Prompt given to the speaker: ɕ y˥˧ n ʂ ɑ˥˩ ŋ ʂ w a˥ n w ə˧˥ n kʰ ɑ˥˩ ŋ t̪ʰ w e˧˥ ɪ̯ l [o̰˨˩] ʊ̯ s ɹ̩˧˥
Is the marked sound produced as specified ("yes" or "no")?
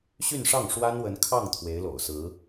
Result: yes